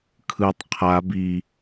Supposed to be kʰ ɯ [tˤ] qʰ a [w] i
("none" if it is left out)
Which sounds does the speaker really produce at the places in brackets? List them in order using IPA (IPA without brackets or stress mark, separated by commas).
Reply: tˤ, b